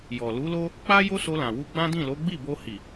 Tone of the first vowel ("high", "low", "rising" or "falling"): low